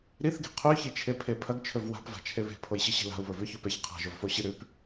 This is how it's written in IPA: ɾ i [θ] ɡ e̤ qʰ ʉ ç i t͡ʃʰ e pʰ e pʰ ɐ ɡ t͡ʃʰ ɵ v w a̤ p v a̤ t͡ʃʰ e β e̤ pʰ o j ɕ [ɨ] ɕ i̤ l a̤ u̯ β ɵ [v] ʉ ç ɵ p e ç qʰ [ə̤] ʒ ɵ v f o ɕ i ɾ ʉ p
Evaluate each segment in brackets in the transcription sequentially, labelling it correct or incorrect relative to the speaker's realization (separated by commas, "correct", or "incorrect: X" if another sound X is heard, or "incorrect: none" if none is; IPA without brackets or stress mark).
correct, correct, correct, incorrect: a̤